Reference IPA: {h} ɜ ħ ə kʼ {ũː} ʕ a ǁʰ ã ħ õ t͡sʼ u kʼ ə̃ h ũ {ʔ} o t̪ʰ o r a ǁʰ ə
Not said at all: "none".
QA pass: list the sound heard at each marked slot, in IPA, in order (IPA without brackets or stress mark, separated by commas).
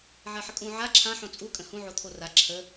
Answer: ʕ, ũ, ʕ